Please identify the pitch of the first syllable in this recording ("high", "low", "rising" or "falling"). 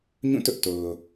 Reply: falling